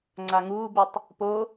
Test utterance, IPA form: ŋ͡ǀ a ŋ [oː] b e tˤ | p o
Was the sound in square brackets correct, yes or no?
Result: no